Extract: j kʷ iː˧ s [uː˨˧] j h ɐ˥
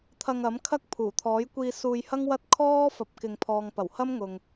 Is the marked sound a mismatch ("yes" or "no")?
yes